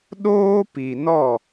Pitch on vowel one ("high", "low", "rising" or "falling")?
high